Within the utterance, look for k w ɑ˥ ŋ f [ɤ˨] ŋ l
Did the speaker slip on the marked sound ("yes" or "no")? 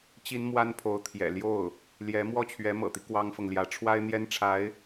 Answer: no